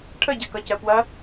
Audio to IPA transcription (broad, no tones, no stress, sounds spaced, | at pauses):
ʈʰ ə ɟ ɜ k ʌ c ɜ p w ɐ